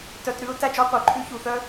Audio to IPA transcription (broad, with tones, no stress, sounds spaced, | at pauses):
t œ˧ t ɾ ʉ˥ ʊ̯ t æ˥ d͡ʒ ɔ˥ qʷ œ˧ ǃʼ ʉ˥ ç u˧ θ œ˥